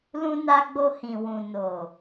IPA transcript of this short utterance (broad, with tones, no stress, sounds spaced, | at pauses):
l ũ˧ n a˧ ɡ͡b o˧ h ĩ˨ w ũ˨ n o˨